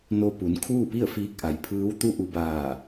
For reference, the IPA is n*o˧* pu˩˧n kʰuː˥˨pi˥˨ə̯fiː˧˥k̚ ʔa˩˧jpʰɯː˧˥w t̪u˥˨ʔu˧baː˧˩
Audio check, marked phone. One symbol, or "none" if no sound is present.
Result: o˧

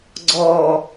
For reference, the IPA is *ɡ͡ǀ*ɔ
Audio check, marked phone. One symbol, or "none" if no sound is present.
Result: ɡ͡ǀ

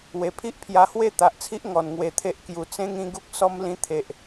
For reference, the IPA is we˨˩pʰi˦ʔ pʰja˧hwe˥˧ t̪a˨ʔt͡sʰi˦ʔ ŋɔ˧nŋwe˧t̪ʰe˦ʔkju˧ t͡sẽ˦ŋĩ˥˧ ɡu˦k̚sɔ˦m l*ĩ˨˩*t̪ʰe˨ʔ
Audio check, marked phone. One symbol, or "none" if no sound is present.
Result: ĩ˧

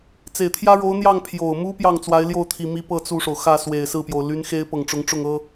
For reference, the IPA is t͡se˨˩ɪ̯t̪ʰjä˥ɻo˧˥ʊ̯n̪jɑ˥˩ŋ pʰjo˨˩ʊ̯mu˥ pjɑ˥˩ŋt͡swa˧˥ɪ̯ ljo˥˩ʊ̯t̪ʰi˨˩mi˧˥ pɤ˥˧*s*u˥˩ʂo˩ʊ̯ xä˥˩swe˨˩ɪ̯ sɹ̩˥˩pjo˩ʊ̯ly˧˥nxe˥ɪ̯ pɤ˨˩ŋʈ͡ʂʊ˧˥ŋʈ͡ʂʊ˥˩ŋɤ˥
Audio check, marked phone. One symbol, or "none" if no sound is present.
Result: t͡s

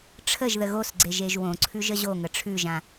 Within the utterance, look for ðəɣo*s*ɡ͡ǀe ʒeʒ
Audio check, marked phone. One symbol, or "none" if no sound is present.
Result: s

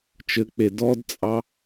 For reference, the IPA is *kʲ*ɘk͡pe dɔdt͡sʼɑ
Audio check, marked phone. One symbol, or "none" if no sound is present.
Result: t͡ʃ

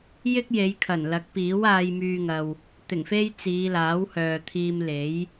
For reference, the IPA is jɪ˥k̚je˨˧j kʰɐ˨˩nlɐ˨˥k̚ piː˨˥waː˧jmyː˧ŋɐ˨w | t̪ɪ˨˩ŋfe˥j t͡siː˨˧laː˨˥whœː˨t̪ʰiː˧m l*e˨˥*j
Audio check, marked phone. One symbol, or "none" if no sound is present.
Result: e˨˥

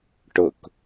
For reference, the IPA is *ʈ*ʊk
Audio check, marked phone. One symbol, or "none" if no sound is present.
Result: ʈ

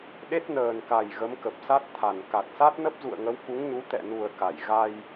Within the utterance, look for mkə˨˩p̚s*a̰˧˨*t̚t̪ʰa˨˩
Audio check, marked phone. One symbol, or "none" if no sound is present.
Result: a˦˥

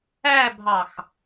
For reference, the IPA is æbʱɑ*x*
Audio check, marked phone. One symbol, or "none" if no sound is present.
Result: x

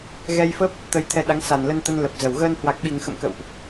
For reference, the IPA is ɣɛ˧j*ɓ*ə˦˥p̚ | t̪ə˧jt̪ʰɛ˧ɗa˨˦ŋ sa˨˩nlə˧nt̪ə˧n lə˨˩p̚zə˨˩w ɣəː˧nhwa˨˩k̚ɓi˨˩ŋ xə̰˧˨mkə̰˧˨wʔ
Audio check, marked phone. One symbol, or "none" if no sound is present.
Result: f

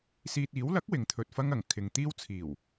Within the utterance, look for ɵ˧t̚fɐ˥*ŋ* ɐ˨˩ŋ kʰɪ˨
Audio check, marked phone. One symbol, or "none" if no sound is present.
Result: ŋ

